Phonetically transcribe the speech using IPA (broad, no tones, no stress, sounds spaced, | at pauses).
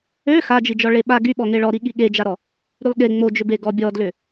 ø x a d͡ʒ i d͡ʒ ɔ ɭ e ɓ a ɡ y ɓ ɔ ŋ e ɭ ɔ ɾ i ɠ i ɠ e d͡ʒ a ɾ ɔ | ɾ y lˠ ɠ e ŋ͡m o d͡ʒ ʏ b e ɡ ɔ bʲ ɔ d l ʏ